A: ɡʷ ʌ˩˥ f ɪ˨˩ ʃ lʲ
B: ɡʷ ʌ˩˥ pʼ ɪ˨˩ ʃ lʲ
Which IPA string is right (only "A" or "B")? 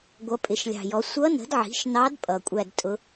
B